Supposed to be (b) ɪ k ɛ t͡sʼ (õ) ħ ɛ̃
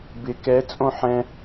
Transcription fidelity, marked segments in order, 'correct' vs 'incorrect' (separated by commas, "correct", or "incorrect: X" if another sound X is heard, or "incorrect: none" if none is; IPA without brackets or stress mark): correct, correct